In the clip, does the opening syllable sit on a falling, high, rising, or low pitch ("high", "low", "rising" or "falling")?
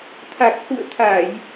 low